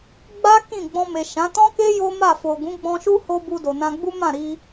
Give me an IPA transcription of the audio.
ɡ͡b a˦ k ĩ˦˨ ɡ͡b ɔ̃˧ m e˨ ʃ ã˨˦ t ɔ̃˦ k e˦ j o˦ m a˦˨ f o˨ ɡ ũ˨˦ ɡ͡b ɔ̃˧ ʃ u˦ h o˦ b u˧ d o˨ n ã˧ ɡ͡b u˦ m ã˦˨ ɾ i˧

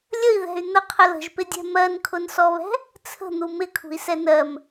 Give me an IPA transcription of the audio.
lʲ ə i̯ ð ɛ̤ y̯ n̪ ə qʰ ə l ə̤ ʒ p ɪ dʲ ɛ̤ m ɜ n kʰ ʊ n s ɔ β ɛ̤ | t͡sʰ ə̤ n̪ u m ɪ kʰ ṳ i̯ s ɛ n ɜ m

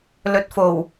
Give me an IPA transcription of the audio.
l ɵ˨˥ t̚ f o˨˩ w

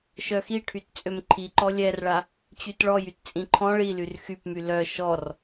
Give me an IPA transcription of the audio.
ʃ œ x i ʈʰ y t t͡sʼ ø m ǃʰ i ǃ ɔ lʲ ɛ r ɭ a | t͡ɕ y t ɭ ɔ j y t t͡sʼ ĩ ǃʰ ɔ̃ ɭ i l y r x y p m y l œ ʃ ɔ r

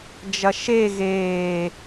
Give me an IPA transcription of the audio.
d͡ʒ ɐ ʃ e ɣ eː

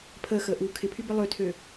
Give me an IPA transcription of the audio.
pʰ əː x əː ʔ uː kʰ ɪ pʰ y b ɪ lˠ ø tʰ ø

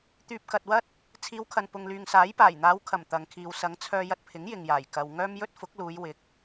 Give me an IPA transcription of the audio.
t̪ yː˨ p̚ k ɐ˨ t̚ w ɐ˥ t̚ | t͡sʰ iː˨˧ w kʰ ɐ˨ n p ʊ˨ ŋ l yː˨ ŋ s aː˨˥ j p aː˨˩ j n̪ aː˨˧ w kʰ ɐ˨˩ m t̪ ɐ˨ ŋ kʰ iː˨ w s ɐ˨˧ ŋ t͡sʰ œː˧ j ɐ˧ t̚ pʰ ɪ˨˥ ŋ j ɪ˨ ŋ j aː˨˩ j k ɐ˨ w ŋ œː˥ m j ɵ˥ t̚ f ʊ˨˥ k̚ l uː˨˧ j w ɪ˨˥ k̚

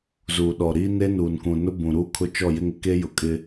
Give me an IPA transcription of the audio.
z uː˨ ɗ ɔ˨ ɾ iː˦ n e˦ n uː˨ n k ũ˨ n ʊ˦ b ũ˨ ɾ uː˦ kʰ ʊ˦ t͡ʃ ɔ˦˨ j ɪ˦ ŋ ɪ˦ k e˦ j ʊ˨ kʼ ɪ˦

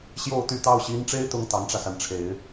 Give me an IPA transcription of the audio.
ɕ j o˥˩ ʊ̯ t̪ y˥ t̪ ɑ˥˩ ʊ̯ ɕ i˧˥ n ʈ͡ʂ e˥ ɪ̯ t̪ ʊ˧˥ ŋ t̪ ɑ˧˥ ŋ ʈ͡ʂ ä˧ s a˩ n ʈ͡ʂʰ e˧˥ ɪ̯

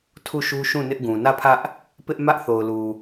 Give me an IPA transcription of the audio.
tʰ u˦˨ ʃ u˦ ʃ ũ˦˨ n ɪ˦ ʔ ɡ ũ˨ n ä˦˨ pʰ ä˦ ʔ | p ɪ˦ ʔ m ä˦ ʔ θ o˨ ʊ̯ l u˨

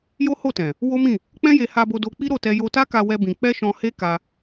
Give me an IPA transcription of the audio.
j o˦ h o˦˨ t ɛ̃˨ | w o˦ m ĩ˦˨ | k͡p ɛ̃˦ j e˧ h a˧ b o˧ d o˧ k͡p i˦ ɾ o˦˨ t ɛ˧ j o˧ t a˦ k a˧ w ɛ˦ b ĩ˧ k͡p ɛ˦ ʃ ɔ̃˧ h e˦ k a˧

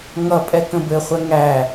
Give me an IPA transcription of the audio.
ŋ ʌ pʼ ɛ k ə̃ b ɘ χʷ ɛ ŋ æ

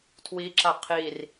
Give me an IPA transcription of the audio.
tʰ w i ǁ a qʰ i r

